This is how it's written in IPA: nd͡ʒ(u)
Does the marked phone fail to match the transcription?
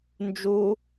no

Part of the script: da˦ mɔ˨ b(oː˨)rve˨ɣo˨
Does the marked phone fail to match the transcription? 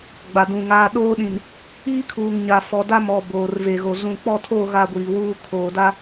no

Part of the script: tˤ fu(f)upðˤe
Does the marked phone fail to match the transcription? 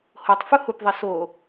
yes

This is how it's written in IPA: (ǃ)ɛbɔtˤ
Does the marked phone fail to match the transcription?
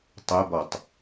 yes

